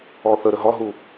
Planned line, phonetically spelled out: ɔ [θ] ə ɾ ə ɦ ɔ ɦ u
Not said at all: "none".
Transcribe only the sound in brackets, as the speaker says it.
θ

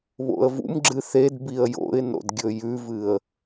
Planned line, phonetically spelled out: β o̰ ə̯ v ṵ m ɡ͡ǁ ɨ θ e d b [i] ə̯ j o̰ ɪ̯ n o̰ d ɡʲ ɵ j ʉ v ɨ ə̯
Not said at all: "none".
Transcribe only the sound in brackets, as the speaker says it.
i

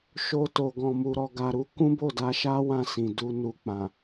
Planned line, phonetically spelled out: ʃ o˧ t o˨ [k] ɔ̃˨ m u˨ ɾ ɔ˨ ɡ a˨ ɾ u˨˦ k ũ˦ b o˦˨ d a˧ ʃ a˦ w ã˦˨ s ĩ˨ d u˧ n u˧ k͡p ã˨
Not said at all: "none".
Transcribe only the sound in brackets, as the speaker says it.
ɡ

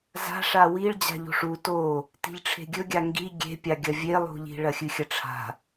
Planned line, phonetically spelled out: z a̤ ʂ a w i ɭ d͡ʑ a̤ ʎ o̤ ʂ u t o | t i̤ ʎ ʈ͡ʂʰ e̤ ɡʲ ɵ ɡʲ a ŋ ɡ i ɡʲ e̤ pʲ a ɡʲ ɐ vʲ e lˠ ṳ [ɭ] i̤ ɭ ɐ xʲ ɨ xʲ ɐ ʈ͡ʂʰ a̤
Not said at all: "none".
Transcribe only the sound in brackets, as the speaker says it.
ʎ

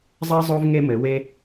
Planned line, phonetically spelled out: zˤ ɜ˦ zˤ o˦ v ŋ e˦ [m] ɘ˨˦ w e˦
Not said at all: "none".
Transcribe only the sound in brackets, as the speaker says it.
m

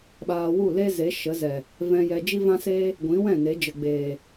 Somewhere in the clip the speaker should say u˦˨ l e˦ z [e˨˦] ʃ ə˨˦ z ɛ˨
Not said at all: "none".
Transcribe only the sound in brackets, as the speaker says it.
e˨˦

